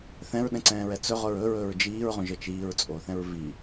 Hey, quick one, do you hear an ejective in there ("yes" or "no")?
yes